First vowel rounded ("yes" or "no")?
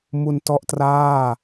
yes